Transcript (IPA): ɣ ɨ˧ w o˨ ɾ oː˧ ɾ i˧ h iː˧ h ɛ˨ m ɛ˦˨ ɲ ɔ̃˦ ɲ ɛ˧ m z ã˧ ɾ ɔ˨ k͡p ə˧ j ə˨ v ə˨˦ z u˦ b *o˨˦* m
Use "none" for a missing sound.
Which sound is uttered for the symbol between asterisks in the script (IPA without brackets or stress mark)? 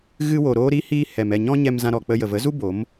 o˨˦